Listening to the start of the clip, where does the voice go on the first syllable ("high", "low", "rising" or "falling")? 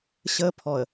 high